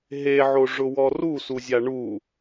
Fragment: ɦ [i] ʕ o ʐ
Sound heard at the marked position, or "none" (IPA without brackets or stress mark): e